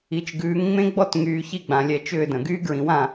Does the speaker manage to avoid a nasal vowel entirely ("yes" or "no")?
no